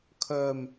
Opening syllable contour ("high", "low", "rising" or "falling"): low